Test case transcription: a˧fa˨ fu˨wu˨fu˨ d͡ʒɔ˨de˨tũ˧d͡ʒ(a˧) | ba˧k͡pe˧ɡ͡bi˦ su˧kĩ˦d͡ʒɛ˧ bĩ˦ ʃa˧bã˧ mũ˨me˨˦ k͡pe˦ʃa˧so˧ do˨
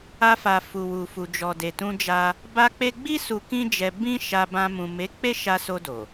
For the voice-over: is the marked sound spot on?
yes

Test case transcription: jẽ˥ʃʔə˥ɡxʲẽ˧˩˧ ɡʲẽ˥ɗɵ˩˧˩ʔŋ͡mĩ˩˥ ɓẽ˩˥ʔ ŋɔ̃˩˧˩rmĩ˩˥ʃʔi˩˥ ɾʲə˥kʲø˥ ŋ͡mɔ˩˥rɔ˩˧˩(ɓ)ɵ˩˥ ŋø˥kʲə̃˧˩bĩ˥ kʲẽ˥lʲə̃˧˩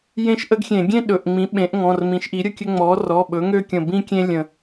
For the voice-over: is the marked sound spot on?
yes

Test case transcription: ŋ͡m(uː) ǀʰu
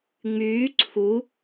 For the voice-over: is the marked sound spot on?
no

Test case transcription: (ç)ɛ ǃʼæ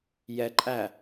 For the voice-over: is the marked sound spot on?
no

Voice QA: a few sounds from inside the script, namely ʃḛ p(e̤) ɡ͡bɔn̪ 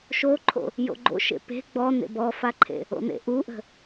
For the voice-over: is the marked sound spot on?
yes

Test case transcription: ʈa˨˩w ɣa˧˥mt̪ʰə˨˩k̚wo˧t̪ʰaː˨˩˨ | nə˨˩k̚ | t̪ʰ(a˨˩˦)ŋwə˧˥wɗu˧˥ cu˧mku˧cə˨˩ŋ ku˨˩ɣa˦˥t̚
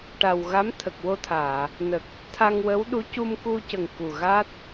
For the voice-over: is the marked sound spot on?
no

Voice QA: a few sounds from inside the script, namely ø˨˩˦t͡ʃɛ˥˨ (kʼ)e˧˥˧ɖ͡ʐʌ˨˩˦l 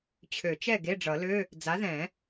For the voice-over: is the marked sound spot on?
no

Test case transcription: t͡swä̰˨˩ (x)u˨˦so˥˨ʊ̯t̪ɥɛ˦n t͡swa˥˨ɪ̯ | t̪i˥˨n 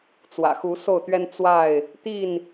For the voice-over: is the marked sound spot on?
yes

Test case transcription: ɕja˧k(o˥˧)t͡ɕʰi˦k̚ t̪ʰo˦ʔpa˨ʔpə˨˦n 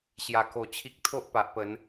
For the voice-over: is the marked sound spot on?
no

